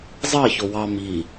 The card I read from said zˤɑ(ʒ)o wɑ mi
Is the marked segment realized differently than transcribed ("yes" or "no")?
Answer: yes